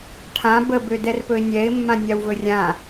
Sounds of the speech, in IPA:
ʈʰ ã b ə b ø d ɛ r p ɵ ɪ̯ nʲ ɛ ɪ̯ mː ã nʲ a w v ɵ rʲ ã

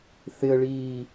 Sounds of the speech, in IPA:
θ ɪ ə̯ ɭ iː

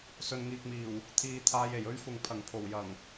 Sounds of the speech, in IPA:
s ɵ˨ n ŋ iː˨ k̚ m iː˨˩ w | t̪ʰ iː˧ t̪ʰ aː˧ j e˨˩ j ɵ˥ ɥ f ʊ˨ ŋ pʰ ɐ˨˩ ŋ pʰ o˨˩ w j ɐ˨˩ ŋ

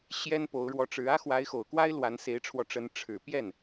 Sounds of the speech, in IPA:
ɕ j ɛ˥ n p o˧˥ ʊ̯ ɻ w ɔ˧˥ ʈ͡ʂ ɻ̩˧˥ ä˥ x w a˧˥ ɪ̯ x o˨˩ ʊ̯ k w a˥ ɪ̯ l w a˧˥ n s e˧˥ ɪ̯ ʈ͡ʂʰ w ɔ˧ ʈ͡ʂ ə˧˥ n ʈ͡ʂʰ ɻ̩˨˩ p j ɛ˥˩ n

